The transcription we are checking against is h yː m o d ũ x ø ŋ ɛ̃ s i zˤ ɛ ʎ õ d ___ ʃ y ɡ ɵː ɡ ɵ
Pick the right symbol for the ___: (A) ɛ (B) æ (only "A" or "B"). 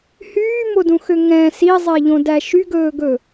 B